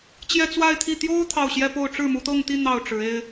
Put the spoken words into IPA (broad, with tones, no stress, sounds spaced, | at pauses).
t͡ɕ j ɛ˥˧ t͡s w a˥˧ ɪ̯ t̪ʰ i˥˩ t̪ j o˥ ʊ̯ t̪ʰ ɑ˥˩ ʊ̯ ɕ j ɛ˥ p o˥˧ ʊ̯ ʈ͡ʂ ɻ̩˥˩ m u˧˥ t̪ ɤ˥˧ ŋ t̪ i˥˧ n̪ ɑ˥˩ ʊ̯ ʈ͡ʂ ɻ̩˧˥ e˥ ɪ̯